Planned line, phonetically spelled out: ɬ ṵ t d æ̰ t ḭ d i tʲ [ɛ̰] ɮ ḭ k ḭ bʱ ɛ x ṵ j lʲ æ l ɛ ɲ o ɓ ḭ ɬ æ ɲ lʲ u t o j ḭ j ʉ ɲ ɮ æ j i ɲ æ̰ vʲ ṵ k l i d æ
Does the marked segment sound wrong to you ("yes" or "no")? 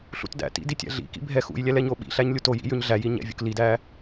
yes